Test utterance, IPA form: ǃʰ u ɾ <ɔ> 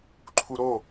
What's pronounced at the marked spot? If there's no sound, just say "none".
o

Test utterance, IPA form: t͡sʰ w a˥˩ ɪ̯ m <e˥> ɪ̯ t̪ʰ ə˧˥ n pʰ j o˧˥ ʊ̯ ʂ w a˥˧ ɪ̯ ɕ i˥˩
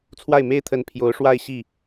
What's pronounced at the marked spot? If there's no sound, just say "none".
e˥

